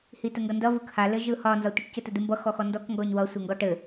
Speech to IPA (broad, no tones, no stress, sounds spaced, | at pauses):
h i t ə ŋ ɡ ʌ n d ʌ v ɯ k h a l ɘ ʒ ɯ h ɒ n z ɒ tʷ ə ʈ c ə t ə d ɯ m b ʌ x ɔ x ɔ n d ɔ k ŋ ɡ ɔ ɲ w ʌ sʷ ɘ ŋ ɡ ɔ ʈ ɘ